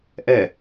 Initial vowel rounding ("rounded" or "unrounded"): unrounded